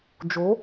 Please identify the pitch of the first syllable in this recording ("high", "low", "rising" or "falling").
rising